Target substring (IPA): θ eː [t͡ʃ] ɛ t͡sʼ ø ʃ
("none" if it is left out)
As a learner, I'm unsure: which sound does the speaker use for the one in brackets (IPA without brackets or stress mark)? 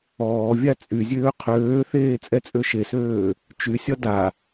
t͡sʼ